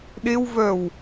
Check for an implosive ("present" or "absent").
present